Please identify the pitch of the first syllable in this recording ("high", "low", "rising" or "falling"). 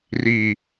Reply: low